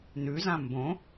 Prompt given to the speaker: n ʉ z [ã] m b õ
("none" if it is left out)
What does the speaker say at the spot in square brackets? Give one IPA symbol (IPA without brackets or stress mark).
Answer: ã